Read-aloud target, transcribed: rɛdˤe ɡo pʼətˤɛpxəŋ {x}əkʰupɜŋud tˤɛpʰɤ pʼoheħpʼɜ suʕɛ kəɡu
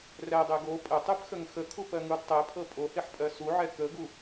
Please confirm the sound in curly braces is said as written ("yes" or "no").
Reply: yes